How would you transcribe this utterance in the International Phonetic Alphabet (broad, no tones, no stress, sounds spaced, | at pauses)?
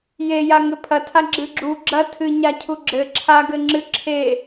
j e j a ŋ ɘ pʰ ɐ tʰ a ɡ͡ǁ ɨ ɡ͡ǁ u ɡ͡ǁ ɐ tʰ ɨ ɲ a cʰ u ɡ͡ǁ ɘ ǁʰ a ɡ ɘ ŋ͡ǁ ɨ ǁʰ e